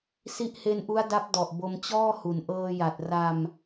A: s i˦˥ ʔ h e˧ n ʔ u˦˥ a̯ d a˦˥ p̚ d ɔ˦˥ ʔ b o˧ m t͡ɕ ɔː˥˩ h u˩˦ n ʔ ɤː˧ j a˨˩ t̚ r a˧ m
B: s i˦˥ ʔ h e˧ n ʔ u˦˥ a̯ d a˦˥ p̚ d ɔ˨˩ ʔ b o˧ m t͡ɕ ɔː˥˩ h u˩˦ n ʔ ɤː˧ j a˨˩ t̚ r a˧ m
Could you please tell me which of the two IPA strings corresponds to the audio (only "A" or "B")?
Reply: B